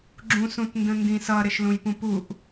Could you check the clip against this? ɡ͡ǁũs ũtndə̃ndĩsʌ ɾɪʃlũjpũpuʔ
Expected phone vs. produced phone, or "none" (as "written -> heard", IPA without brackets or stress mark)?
none